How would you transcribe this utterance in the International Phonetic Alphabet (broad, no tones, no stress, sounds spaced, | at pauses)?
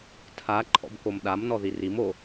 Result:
tʰ a ǃʰ ɔ̰ b k o m ɗ a m n ɔ ð i r i m o